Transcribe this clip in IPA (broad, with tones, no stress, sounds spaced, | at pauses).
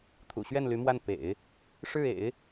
t̪ʰ ṵ˨˩ ɕ ɥ ɛ˥˩ n l y˧˥ m w a˥˩ n p ḛ˨˩˦ ɪ̯ | ʂ ɻ̩˥˩ ḛ˨˩˦ ɪ̯